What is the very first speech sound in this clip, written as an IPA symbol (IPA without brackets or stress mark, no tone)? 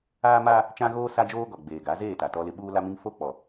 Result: aː